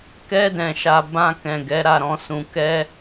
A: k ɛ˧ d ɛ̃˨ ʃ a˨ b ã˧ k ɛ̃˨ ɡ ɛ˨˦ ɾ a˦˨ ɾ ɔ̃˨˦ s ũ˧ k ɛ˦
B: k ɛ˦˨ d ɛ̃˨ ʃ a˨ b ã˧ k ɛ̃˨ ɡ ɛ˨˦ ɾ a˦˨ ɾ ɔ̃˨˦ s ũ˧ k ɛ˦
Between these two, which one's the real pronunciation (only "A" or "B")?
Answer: A